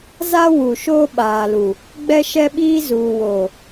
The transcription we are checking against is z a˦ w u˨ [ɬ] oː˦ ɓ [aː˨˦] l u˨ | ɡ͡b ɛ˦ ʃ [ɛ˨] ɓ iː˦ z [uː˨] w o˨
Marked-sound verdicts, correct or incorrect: incorrect: ʃ, incorrect: aː˨, incorrect: ɛ˦, correct

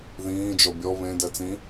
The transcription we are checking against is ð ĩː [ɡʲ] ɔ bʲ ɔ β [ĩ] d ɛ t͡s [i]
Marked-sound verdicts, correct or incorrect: incorrect: d͡ʒ, incorrect: ẽ, incorrect: ĩ

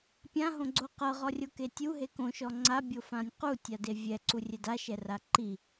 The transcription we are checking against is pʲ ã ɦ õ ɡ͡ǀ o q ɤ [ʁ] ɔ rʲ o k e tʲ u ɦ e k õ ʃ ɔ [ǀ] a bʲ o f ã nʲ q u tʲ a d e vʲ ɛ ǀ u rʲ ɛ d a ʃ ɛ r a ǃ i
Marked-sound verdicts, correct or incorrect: correct, incorrect: ŋ͡ǀ

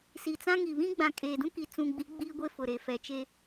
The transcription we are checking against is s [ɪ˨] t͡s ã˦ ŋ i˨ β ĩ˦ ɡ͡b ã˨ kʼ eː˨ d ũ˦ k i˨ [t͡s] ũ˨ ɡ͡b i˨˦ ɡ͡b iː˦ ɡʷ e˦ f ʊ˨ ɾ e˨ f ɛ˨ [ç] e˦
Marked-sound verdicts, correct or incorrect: incorrect: i˨, correct, incorrect: t͡ʃ

